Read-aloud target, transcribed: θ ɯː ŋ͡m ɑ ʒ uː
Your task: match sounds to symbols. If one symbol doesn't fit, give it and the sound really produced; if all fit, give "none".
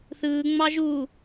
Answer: none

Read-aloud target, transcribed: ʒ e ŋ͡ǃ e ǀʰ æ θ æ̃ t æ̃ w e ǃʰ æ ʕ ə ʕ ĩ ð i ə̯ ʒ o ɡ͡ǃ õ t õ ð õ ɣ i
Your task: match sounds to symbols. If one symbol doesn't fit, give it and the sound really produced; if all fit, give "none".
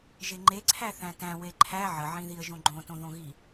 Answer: o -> õ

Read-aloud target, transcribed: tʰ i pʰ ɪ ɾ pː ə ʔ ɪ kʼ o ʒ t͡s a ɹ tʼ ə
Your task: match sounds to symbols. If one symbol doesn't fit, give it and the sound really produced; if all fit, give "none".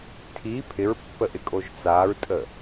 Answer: ɾ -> ɹ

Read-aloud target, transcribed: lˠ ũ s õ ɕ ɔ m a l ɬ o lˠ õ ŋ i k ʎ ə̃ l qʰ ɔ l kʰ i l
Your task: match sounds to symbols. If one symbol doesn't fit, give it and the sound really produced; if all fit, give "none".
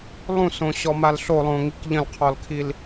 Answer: none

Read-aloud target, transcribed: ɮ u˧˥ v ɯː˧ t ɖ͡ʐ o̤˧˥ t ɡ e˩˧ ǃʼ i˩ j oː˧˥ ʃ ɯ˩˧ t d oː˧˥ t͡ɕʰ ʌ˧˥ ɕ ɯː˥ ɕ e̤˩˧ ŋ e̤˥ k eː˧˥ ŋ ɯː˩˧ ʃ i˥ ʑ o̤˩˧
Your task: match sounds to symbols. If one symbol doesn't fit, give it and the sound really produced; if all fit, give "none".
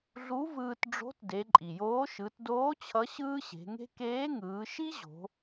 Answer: ɡ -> d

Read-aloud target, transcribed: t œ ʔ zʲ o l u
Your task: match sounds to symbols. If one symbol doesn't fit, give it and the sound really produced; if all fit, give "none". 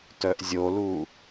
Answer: none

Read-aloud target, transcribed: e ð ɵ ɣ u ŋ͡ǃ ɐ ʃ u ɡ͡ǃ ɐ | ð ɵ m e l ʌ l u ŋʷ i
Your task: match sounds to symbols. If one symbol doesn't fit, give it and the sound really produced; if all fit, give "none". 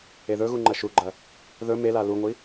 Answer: ʌ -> a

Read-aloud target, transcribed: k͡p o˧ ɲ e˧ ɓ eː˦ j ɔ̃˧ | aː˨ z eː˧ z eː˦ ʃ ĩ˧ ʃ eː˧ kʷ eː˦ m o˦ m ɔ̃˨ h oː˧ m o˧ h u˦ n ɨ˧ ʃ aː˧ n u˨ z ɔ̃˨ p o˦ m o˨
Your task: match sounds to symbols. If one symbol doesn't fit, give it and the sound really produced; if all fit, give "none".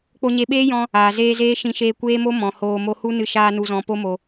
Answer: none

